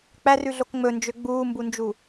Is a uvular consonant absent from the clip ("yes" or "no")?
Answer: yes